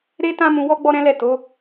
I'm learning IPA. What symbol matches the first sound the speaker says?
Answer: ɾ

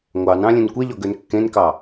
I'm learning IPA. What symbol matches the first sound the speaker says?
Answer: ŋʷ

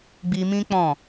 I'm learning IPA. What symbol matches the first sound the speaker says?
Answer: ɡ͡b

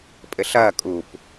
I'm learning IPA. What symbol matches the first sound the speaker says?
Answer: pʼ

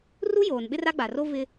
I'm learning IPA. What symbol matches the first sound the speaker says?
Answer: r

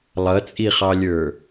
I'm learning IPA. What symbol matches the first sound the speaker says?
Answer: lˠ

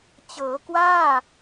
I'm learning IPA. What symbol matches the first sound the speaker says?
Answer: t͡ɕ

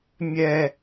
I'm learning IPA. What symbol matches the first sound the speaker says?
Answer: mʲ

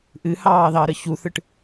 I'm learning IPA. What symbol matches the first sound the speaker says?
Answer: ʔ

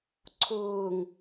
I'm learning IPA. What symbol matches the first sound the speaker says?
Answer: ǀʰ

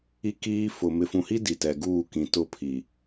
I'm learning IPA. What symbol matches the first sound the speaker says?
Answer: i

